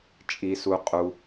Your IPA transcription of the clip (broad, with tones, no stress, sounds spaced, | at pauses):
t͡ʃʼ i˩ s u˩ qʼ u˩